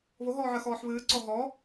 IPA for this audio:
β o ɦ ɔː ʕ ɜ x ɔː ħ β ɨː ǀ ɔ ɦ ɔ

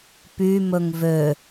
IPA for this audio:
p y m ɵ ŋ v ø

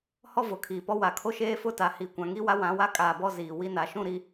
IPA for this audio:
h ɔ˦ v ʊ˨ kʰ iː˨ p ɔ˦ w a˨ kʰ o˦ ʃ eː˦ f ʊ˦ t a˨ h i˨ kʷ ã˨ ŋ i˦ w a˦ w ã˨˦ w a˦ kʼ aː˨ b ɔ˦ z iː˨ w i˦ n a˨ ʃ ũ˦˨ ɾ i˨

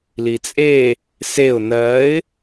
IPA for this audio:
l i t͡sʼ e | s e ʊ̯ n ɜ ɪ̯

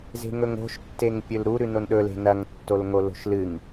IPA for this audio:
z e̤ ŋ ɵ ŋ o̤ ʃ tː e ŋ pʲ ɵ l ɾ u ɾ ʉ n o n ɗ ɵ l e̤ n ɐ ŋ tː o l ŋ o l o̤ ʃ l ɨ ŋ

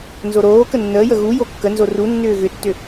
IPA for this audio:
n z o ɾ oː k ə nː əː j ə ɣ u j o kː ə n z o r u nː ʏː ɣ ʏ tː ʏ

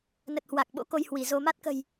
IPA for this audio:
n ə˨˩ t̚ h w a˨˩ k̚ ɓ o̰˧˥ k o˧ j h w i˧˩ z o˧ m a˦˥ t̚ k ə̤˨˩ j

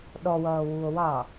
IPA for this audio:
ɗ ɔ w ʌː w u o̯ w ɑ

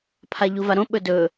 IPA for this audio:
pʰ a ʎ u v a ɾ õ ɓ ɵ d ɵ

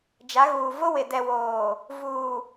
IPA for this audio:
d͡ʒ a˨˦ ɣ uː˨ v ʊ˦ w ɪ˨ d ɛ˨ w oː˨ | v uː˨

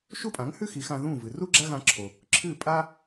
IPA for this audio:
ʃ u˥ pʼ ã˩˥ ŋ h ʉ˥ x i˩˥ x ã˧ ð ũ˥˩ v ɨ˩ r u˥ ɡ͡ǁ a˥ ɣ ã˧ ǁʰ o˩ | ǁʰ ɨ˥˩ pʼ a˥

